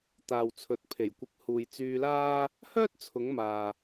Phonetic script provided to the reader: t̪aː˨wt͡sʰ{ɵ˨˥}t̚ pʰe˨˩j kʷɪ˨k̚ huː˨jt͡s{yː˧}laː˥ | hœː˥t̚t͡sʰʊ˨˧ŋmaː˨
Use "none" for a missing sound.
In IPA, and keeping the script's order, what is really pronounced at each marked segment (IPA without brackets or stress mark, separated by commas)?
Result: ɵ˨, yː˧